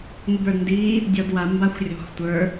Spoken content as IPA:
ŋʷ ɯ b ə˞ d n d iː | dʲ ɔ d w a m b a xʷ rʲ ɔ̤ x tʷ ə˞

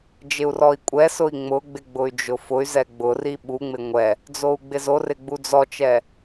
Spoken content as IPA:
d͡ʒ ɪ u̯ r ɔ i̯ kʷʼ ɛ s ʊ i̯ ŋ͡m ʊ ɡ͡b ɪ ɡ͡b ʊ y̯ d͡ʒ ʊ f ʊ y̯ z ɛ ɡ͡b ʊ r i ɓ u ŋ͡m ɪ ŋʷ ɛ | d͡z o u̯ ɡ͡b ɪ z o r ɪ ɡ͡b u d͡z ɔ t͡ʃ ɛ

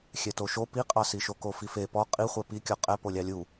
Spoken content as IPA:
xʲ ɛ t o ʃ o p i qʼ ɑ s i ʃ o k o f i f e p ɔ qʼ i χʷ ɛ p i kʲ ɔ qʼ ɛ p o lʲ ɑ lʲ u

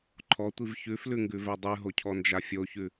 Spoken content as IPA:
ǃʰ ɔ tʷ i v ç ʉ f l ʉ ŋ ɡ ʉ v ɛ dˤ ʉ ɦ o cʰ ɔ n d͡ʒ a fʲ o ç ʉ

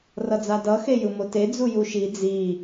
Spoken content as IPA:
r ʌ d͡z a d ʌ x e j ɯ m o t e d͡z u j u ʃ i d͡z i

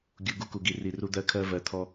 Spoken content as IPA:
ɡʲ u˨ ɡ u˦ k u˨ ɡ i˨ r i˨ r u˦ d̪ ɜ˦ kʰ ɜ˦ v ɜ˨ t̪ʰ ɔ˦

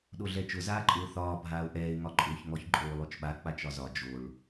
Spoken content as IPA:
ɗ o ɮ ɛ t͡ʃ ʊ z aː ǃʼ ʊː θ ɒː bʱ aː ʊ̯ ʔ ɛː ɪ̯ ŋ ɒ ǃʼ ʊː ç ŋ ɔ ç ǃʼ oː lˠ o t͡ʃ ɓ a k͡p a t͡ʃ ɒ z ɒ d͡ʒ o ɭ

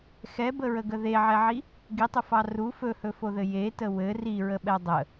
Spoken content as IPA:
x ɛ b ə ɹ ə ɡ ə ð e ʕ ɛ ʕ i | ɡ i tˤ ɵ f ɑ r u f ɵ h ɵ f o ð ɘ j e t ə w ɘ r i ɹ ə ɓ ɛ dˤ ə

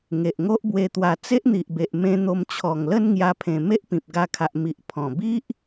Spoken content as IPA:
ŋ e˨ ʔ ŋ o˦ ʔ b w e˧ t̪ w a˧ t͡s e˦ ʔ n̪ i˨ ʔ b e˨ ʔ m ẽ˧ n̪ o˧ m t͡ɕʰ ɔ˨˩ ŋ l ə˦ n ŋ j a˧ pʰ ẽ˨˩ m e˦ ʔ p ĩ˨ p̚ ɡ a˧ kʰ a˨ ʔ m i˨ ʔ pʰ ɔ̃˨˩ b i˦ ʔ

